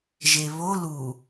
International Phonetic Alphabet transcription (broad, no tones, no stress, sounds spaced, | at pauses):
ʒ e β o l u